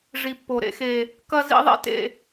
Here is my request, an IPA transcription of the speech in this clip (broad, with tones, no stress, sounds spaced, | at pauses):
ʐ i˨ pː o˨ ɾ ḛ˦ x e˦ | k ɐ˦ z ḭ˦ ðˤ ḛ˦ t ḛ˦